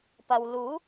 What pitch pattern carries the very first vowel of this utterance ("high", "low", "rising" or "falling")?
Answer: low